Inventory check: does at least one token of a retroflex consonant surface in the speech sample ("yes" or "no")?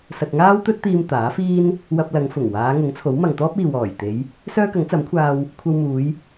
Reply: no